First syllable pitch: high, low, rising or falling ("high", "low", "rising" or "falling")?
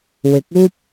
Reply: rising